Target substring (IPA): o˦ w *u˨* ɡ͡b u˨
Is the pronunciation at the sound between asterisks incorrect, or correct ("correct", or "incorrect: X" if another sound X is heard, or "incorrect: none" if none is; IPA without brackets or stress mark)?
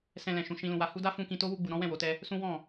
incorrect: u˧